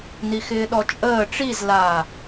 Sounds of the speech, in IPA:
n i x ɪː ɗ ɔ t͡ʃʼ əː ʈ͡ʂ i z l aː

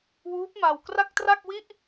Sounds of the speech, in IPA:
w uː˦˥ p̚ m a˧ w k r a˥˩ k̚ t r a˥˩ k̚ w i˥˩ ʔ

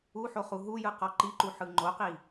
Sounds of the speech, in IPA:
u ħ o χ u ɦ u j ɯ q ɔ ǃ i ǃ u ħ ɯ ŋ͡ǃ o q i

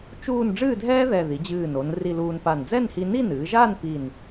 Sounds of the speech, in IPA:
t͡ʃ uː˥˧ n ɖ͡ʐ ɨː˥˧ dʱ ɛː˥ ð ɛ˧˩ ð i˩˧ d͡ʑ ɨː˧˩ n o˩˧ n r i˧ l uː˧ n p a˧˩ n d͡z ɛ˥˧ n h i˧ n i˥˧ n ɨː˩˧ ʒ aː˥˧ n p i˧˩ n

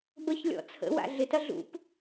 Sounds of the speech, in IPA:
b ə ç lʲ ɔ̰ t͡sʰ ə̰ w a̰ ɮ ɪ t ɐ ɮ ṵ p

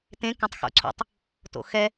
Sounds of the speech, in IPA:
t ẽ k ɐ̃ tˤ x o̰ ǀʰ o̰ tˤ | t o̰ x ɛ

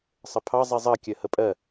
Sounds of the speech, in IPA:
sˤ ə pʰ ɑ zˤ i zˤ ɜ kʲ ɜ h ə pʼ ɜ

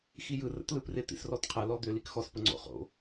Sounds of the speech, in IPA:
x i j ɯ r ə̰ t l ɯ p r ɪ t̪ ḭ s r ɔ t qʰ ə l ɔ d̪ ʏ l i k x ɔ s p ə ŋ͡ǀ o̰ χ o̰

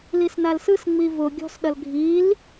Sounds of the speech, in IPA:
l i s n a l s ɯ s ŋ͡m i v ʊ ɡʲ ɔ̤ s ɗ ɐ l ɡʱ i l

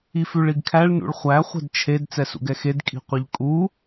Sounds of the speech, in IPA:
i f ʉ ɭ i ɡ kʰ æ ɭ n ṵ ɭ χʷ æ χʷ ɛ̤ d t͡ʃʰ e d t͡s ɛ s ṵ ɡ ɛ x e d kʼ i̤ qʷ i ʎ kʼ u

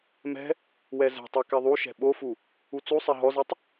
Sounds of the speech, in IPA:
m ɛ̤ | w ɛ z ɛ̤ tˤ ɛ k ɛ ðˤ u ʃ ɛ̤ ɓ o f u | u t͡s u sˤ ɛ ɦ ɔ z ɛ tˤ

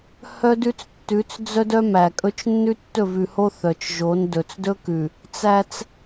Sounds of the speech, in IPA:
h œ˦ d ʉ˦ t͡s tː ʉ˨˦ t͡s d͡z œ˦ d œ˦ m æ˨ kʼ ɵ˦ t͡ʃ nː ʉ˦ tː ɵ˦˨ v ʉ˨ h o˦ θ œ˨ t͡ʃ ʒ o˨˦ n d ɵ˨ t͡s d ɵ˦ k ʉ˨ | t͡s æ˦ t͡s

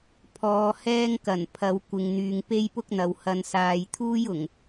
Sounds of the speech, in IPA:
pʰ ɔː˨˧ h ɛː˥ ŋ k ɐ˨˩ n pʰ ɐ˨˧ w kʷ ɪ˨ ŋ n̪ yː˨ ŋ p e˥ j p ʊ˥ k̚ n̪ ɐ˨ w h ɐ˨ n s aː˨ j t̪ʰ uː˥ j ʊ˨˩ ŋ

